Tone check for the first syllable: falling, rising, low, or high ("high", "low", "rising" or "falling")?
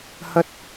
high